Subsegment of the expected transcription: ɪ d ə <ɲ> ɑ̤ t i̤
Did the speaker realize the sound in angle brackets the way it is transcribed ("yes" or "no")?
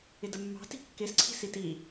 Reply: no